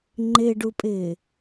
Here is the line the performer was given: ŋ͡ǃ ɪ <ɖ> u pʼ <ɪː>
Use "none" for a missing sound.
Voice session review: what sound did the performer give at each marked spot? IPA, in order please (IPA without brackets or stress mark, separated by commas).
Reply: ɖ, ɪː